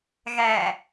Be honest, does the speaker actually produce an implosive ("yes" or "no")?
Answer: no